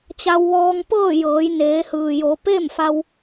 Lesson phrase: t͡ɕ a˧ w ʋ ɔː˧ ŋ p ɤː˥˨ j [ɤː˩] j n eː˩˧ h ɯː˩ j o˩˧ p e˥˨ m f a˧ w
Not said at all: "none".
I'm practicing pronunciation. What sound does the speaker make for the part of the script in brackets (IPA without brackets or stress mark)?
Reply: ɤː˩˧